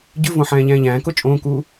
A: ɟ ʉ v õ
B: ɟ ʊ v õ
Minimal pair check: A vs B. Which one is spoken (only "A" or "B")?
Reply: A